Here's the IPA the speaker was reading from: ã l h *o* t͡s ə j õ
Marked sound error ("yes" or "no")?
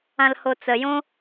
no